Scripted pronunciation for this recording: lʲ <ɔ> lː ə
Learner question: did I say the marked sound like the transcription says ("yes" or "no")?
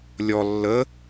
yes